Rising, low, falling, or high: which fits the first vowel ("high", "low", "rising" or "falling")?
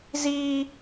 high